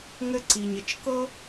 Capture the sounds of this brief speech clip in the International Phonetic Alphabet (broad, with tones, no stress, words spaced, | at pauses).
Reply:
ŋɘ˥ǀi˩ɲɪ˩t͡ʃ kɤ˥